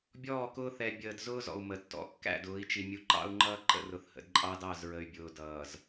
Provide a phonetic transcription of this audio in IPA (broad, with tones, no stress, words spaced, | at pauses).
bʲɔː˦˨kʊː˦ θɛ˨bʲəː˨dzʊː˦ zɔ̰˨u̯ mə˨ tːɔ̰˨kːæ̰˦˨dʊː˨˦i̯t͡ʃi˨ mʲu˨ǃɑ̰˦u̯ŋ͡ǃʌː˦ ǃə̰˦˨rʊ˨θhə̰˨d ǃʼɑ˦dɑ˦˨z ɹə˨y̯ bʲʊː˨dʌː˨z